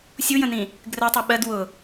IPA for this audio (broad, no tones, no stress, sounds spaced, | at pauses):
sʲ u j ə̃ n ĩ | ɡ r ɜ tˤ u ɓ ɜ d w ʊ